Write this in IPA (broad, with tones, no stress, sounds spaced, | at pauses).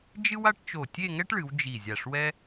d͡ʒ ɨ˥ w a˥ ʈ t͡ʃ o˧˩ tʲ e˥˧ ŋ ɛ˥ ʈ ɭ ɨ˩˧ w d͡ʒ i˧˩ zʲ a˧˩ ʂ w ɛ˥